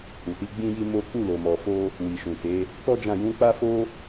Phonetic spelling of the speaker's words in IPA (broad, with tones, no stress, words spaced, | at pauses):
hu˨ti˧ɡ͡bĩ˦ji˦ mo˦ k͡pu˦˨lo˨mɔ˨fo˧ | wi˨ʃũ˨te˨˦ | tɔ˦d͡ʒã˦˨ jũ˨˦ k͡pa˦fo˦